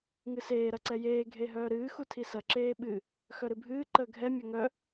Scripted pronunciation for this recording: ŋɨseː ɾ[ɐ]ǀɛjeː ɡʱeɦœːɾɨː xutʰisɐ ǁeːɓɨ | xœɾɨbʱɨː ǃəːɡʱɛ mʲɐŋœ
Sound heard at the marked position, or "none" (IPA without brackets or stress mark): ɐ